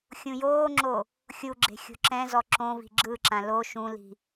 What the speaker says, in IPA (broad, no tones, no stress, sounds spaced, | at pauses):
xʲ ũ j oː ŋ͡ǁ o | xʲ u ɡ͡ǁ e̤ xʲ o̤ ǁ ɛ̃ z ɔ ǁ õ v i̤ ɡ͡ǁ ɯ ǁ ã l o ʃ ũ l i̤